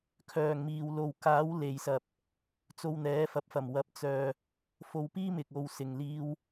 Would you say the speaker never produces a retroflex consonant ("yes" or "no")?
yes